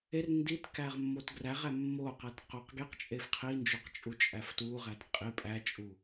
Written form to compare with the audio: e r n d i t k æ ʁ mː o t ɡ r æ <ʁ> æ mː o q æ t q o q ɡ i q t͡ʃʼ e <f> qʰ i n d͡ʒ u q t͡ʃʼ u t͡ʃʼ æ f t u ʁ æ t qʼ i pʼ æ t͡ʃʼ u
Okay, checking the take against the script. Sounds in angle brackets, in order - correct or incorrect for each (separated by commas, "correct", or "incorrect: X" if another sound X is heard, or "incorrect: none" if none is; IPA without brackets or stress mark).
correct, correct